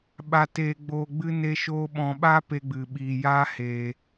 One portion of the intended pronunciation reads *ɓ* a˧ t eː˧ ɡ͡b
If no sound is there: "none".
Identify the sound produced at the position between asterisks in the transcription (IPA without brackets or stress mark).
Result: ɓ